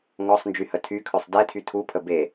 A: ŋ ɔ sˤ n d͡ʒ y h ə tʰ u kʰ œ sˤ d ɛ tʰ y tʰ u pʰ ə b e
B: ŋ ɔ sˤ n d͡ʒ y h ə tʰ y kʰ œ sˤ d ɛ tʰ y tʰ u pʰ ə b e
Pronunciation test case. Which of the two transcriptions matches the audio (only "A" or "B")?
B